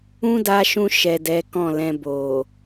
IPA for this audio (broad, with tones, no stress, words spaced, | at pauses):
ũ˦da˧ʃũ˧ ʃɛ˨ dɛ˨˦kɔ̃˦˨lɛ̃˧ bo˨